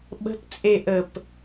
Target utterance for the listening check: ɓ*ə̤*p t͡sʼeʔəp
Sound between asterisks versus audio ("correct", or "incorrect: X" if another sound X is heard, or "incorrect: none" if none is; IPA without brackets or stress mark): correct